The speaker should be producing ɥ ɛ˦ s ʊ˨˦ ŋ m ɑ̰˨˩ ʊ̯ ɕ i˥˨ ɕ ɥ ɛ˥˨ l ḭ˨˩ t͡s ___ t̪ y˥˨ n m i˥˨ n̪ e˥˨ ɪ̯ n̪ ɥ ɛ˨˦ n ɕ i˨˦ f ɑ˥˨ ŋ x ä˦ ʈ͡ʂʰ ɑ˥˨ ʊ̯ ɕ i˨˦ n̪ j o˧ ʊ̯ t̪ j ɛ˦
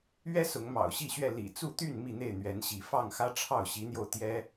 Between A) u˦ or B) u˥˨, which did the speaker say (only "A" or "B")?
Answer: B